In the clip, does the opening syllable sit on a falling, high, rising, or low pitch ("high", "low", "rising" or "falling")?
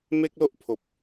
high